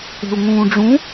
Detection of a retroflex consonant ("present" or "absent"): present